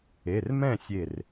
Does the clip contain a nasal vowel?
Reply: yes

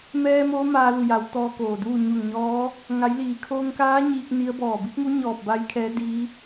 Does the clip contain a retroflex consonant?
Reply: no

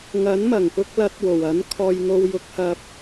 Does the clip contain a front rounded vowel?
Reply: no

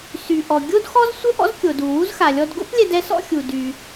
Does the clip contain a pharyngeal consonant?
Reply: no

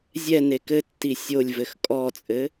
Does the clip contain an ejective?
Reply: yes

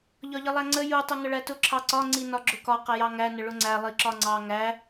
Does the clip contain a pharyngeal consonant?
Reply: no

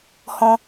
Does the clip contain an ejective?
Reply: no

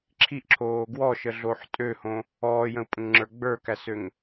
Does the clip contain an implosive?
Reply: no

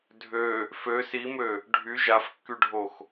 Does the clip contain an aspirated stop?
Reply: no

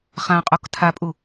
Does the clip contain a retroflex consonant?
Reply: no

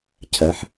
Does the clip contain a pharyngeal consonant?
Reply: yes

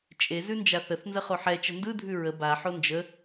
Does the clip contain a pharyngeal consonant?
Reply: yes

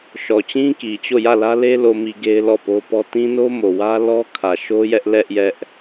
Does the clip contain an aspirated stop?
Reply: yes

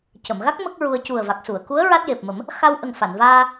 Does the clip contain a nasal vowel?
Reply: no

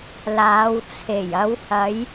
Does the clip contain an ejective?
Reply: no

